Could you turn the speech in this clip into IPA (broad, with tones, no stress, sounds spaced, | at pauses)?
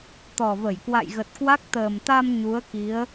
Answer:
t̪ ɔ˨˩ v ə˧˩ j k w a̰˧˨ j ɣ ə˨˩ t̚ k w a˦˥ k̚ t̪ əː˨˩ m t̪ a˧ m ɲ u˨˦ ə̯ k i˨˦ ə̯